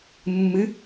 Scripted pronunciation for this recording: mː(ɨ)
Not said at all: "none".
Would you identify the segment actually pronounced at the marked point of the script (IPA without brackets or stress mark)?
ɨ